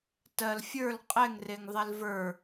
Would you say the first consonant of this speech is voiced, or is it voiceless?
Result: voiceless